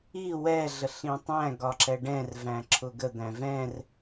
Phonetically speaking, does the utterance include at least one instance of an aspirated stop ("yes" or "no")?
yes